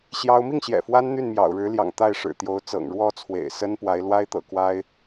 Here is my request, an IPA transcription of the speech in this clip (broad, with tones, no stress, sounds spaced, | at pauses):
ɕ j ɑ˥ ʊ̯ m i˥˩ ŋ ɕ j ɛ̰˨˩ f w a˥ n n̪ y˥˩ n m j ɑ̰˨˩ ʊ̯ ɻ ɻ̩˧˥ l j ɑ̰˨˩ ŋ t̪ a˥˩ ɪ̯ ʂ ɻ̩˨˩ t̪ j o˧˥ ʊ̯ t͡s ɤ̰˨˩ ŋ ɻ w ɔ˥˩ t͡sʰ w ḛ˨˩ ɪ̯ s ə˥ n p w a˧˥ ɪ̯ l w a˥ ɪ̯ t̪ ɤ̰˨˩ k w a˥ ɪ̯